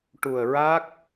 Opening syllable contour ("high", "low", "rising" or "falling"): low